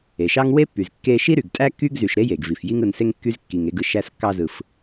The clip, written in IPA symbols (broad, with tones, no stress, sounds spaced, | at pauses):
e˩ ʃ ɑ˦ ŋ w e˥ pː y˩ z kː e˦ ʃ i˥ ɾ y˩ ɡ tʼ æ˥ kː y˥ ɡ z y˨ ʃ ɾ e˥ j e˩ ɡ v i˩ f j i˦ ŋ ɯ˨ n s e˦ ŋ kː y˥ z kː i˨ ŋ e˦ ɡ ɯ˨ ʃ æ˥ s kː ɑ˦ z ɯ˨ f